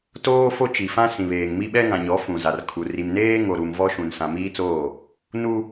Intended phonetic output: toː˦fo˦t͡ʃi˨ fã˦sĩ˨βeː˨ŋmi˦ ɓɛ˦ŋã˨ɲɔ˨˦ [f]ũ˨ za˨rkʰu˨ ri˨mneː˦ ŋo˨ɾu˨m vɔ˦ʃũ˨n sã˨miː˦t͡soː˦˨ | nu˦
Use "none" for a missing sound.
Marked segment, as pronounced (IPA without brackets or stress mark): f